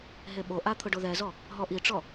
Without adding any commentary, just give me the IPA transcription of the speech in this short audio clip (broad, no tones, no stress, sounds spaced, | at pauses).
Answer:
ɦ e ɓ o ʔ a t̪ʰ ʊ ɖ o ð ɛ z ɔ | ɦ ɔ ʔ i ʈ͡ʂ ɔ